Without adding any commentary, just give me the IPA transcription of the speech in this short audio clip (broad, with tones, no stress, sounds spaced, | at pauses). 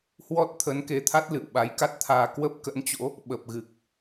h w ɔ˦˥ t̚ t̪ʰ ə˨˦ n k e˨˦ t̪ʰ a˦˥ t̚ l ɨ̰˧˨ w ɓ a˨˦ j k a˦˥ t̚ t̪ʰ aː˧ k w ə˦˥ p̚ k ə̰˧˥ n t͡ɕ o̰˧˥ | ɓ ə˨˩ p̚ ɣ ɨ˨˩ k̚